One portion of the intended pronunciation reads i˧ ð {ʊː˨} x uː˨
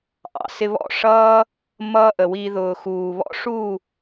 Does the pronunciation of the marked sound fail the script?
no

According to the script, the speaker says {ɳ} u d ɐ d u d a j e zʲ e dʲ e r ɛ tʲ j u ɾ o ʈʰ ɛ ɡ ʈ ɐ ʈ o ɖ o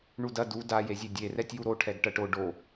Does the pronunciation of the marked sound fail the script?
no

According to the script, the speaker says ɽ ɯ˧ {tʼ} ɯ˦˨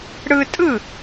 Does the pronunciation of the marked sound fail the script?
no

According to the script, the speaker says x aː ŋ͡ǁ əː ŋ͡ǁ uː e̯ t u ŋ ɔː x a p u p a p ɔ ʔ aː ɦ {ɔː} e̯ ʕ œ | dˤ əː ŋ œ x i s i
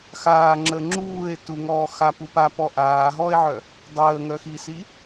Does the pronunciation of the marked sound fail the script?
no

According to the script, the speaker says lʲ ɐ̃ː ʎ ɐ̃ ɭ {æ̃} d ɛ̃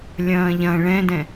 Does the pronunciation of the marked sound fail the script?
yes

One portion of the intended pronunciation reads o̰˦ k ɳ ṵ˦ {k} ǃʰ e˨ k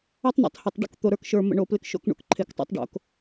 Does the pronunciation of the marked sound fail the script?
no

